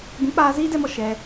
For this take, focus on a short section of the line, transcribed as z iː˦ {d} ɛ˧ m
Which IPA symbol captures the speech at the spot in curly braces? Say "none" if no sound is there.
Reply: d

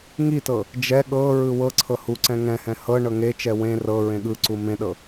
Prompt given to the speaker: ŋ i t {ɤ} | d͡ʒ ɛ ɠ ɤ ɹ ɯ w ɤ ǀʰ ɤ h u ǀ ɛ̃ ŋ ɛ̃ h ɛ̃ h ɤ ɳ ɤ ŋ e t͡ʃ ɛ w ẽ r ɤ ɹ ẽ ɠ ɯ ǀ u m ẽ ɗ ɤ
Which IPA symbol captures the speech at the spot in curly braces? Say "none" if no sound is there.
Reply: ɤ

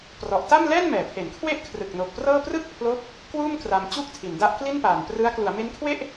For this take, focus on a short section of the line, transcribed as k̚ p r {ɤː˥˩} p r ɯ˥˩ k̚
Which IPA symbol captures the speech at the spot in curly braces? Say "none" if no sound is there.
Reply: ɤː˥˩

